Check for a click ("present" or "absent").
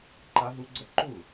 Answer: present